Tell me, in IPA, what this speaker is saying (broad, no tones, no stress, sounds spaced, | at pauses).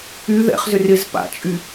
y ð ɛ̰ χ z ʏ r ɪ z p a̰ t͡ʃʼ y